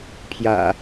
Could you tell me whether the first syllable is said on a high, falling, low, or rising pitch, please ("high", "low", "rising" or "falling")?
low